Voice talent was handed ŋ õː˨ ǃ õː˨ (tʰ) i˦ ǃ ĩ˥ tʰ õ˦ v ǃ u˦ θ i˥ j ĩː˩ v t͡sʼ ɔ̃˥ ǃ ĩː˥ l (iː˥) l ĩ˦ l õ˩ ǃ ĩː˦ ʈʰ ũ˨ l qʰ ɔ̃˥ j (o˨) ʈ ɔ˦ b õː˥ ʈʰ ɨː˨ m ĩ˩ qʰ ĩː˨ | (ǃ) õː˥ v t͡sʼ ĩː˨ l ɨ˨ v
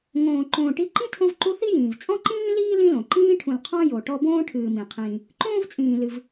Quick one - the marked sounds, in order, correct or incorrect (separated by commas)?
incorrect, correct, correct, correct